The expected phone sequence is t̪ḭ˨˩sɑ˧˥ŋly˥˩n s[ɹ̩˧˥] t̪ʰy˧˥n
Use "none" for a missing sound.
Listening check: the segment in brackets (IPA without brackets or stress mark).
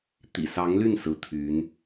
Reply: ɹ̩˧˥